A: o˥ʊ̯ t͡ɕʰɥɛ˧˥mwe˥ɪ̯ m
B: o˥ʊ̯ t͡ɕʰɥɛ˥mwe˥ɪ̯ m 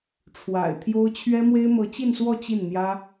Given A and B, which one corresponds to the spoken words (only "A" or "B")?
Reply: B